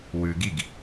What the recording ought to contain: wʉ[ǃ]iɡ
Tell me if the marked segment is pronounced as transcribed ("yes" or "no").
no